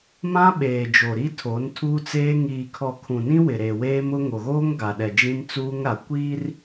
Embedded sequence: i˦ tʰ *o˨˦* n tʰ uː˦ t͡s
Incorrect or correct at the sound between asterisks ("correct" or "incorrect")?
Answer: correct